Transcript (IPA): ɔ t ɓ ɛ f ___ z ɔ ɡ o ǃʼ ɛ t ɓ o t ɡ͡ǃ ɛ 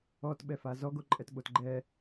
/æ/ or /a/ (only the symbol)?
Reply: a